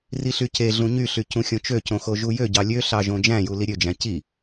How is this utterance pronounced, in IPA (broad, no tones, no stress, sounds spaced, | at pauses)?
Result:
r i ɬ y c e ɮ ũ ɲ y ɬ y c ũ xʲ õ t͡ʃ ø c õ x o ʒ u j ø ɟ ɑ lʲ ø ɬ ɑ ʒ õ d͡ʒ æ̃ j u l i ɾʲ ø d͡ʒ æ̃ c i